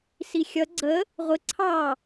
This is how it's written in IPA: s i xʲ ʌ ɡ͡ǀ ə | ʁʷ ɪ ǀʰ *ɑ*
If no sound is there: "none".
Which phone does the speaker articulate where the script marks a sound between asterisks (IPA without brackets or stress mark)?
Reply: ɑ